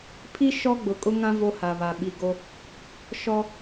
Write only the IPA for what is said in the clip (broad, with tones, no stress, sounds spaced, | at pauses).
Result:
pʰ i˦ ʃ ɔ˦ ɡ͡b ʊ˨ kʼ ʊ˦ ŋ ã˦ v o˦ h a˨ β a˨ ɓ i˨ ɡ o˦ | ʃ ɔ˦